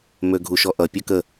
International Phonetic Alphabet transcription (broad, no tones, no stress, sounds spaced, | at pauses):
m ø ɡʱ u ʃ ɔ ʔ ʌ pʲ ʌ k ə